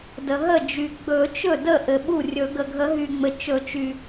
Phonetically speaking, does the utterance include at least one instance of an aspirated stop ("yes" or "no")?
no